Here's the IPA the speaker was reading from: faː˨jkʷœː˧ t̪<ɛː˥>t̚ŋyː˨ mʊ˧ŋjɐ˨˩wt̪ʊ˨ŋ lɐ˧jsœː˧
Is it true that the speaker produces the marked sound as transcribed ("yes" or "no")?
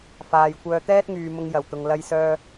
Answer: yes